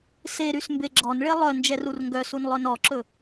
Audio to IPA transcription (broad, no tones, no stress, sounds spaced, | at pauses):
s e ɾ y s m b e ɡ͡ǁ ɔ n ɭ e lˠ œ n d͡ʒ ɛ r u r ŋ ɡ œ s u n lˠ œ n ɔ ǁ ɵ